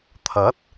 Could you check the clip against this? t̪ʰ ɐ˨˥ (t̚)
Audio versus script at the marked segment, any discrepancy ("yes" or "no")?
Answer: no